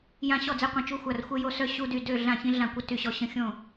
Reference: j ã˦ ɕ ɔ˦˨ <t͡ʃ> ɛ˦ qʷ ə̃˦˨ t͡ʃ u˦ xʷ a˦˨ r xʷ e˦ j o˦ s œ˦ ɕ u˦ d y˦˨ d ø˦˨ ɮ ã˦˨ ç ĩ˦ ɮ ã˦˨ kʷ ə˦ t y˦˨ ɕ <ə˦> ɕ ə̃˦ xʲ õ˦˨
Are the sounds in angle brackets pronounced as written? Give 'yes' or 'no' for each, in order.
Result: no, no

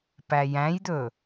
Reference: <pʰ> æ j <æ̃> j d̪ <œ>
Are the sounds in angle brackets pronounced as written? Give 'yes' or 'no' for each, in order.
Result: no, yes, no

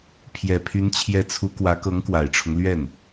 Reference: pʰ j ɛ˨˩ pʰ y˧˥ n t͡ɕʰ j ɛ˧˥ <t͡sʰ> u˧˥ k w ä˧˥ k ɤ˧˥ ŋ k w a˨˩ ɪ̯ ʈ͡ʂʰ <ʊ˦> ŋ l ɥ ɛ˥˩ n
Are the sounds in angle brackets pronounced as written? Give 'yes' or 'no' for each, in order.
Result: yes, yes

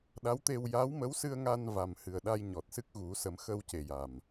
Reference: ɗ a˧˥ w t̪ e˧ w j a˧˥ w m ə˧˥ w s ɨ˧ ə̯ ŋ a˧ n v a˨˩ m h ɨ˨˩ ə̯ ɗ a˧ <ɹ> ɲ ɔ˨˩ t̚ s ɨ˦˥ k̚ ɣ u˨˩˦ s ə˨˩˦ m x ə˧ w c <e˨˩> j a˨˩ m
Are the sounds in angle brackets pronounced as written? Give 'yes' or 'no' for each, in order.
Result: no, yes

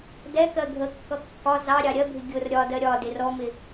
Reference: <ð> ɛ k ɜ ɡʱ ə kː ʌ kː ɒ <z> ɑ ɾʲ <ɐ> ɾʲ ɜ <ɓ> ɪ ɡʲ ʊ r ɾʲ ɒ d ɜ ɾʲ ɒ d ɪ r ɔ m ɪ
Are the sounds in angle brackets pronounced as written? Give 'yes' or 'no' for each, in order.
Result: no, yes, no, no

